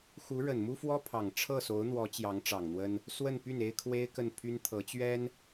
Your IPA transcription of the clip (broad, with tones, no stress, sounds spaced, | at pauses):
x u˧˥ ɻ ə˨˩ n m u˥ f w ɔ˥ pʰ ɑ˨˩ ŋ ʈ͡ʂʰ ɤ˥˩ s o˧˥ ʊ̯ n̪ w ɔ˧˥ t͡ɕ j ɑ˧˥ ŋ ʈ͡ʂ ɑ˨˩ ŋ n̪ w ə˥ n | s w ə˥˧ n p y˥˩ n e˥ ɪ̯ kʰ w e˥ ɪ̯ k ə˥˩ n pʰ y˥ n t̪ʰ ɤ˧˥ t͡ɕ ɥ ɛ˥ n